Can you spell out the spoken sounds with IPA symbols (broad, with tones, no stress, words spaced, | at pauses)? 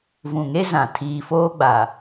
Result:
vũ˨ŋe˦zã˨ tʰiː˨foː˦ɡ͡ba˨